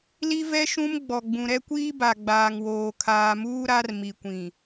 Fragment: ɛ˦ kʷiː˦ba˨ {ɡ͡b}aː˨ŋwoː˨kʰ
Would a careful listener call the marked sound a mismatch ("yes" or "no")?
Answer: no